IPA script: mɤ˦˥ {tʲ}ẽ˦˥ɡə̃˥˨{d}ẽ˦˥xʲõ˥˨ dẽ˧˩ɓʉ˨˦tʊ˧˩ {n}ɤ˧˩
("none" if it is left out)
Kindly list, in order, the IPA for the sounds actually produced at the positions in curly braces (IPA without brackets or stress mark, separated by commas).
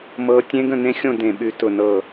tʲ, n, n